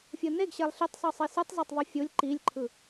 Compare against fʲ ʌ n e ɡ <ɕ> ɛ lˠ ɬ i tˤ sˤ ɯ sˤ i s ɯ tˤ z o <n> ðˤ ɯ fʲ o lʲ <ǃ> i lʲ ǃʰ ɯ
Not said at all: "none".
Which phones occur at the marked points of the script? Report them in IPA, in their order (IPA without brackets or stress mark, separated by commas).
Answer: ɕ, tˤ, ǃ